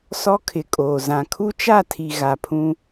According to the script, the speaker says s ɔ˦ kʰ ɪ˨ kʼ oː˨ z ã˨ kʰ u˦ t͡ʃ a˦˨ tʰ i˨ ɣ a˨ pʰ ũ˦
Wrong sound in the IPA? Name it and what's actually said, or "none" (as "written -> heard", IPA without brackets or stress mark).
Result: none